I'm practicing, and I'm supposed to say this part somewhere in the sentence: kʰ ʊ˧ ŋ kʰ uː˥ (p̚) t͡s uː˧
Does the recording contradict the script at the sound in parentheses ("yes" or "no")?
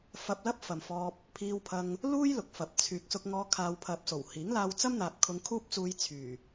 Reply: no